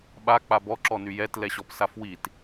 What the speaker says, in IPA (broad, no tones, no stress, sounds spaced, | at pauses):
ɓ a k͡p a b ɔ ǁ ɔ n y j ɛ t l ɛ ɕ ɔ p s a f w i t